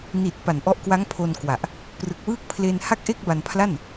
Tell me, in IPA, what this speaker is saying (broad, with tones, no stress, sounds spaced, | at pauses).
n i˨˩ t̚ p a˨˩ n ʔ ɔ˦˥ ʔ k w a˦˥ ŋ pʰ o˧ n k w a˨˩ ʔ | p r ɯ˨˩ k̚ w ɯː˥˩ k̚ pʰ l e˧ n h a˥˩ k̚ ʔ e˥˩ k̚ b a˧ n pʰ l a˥˩ n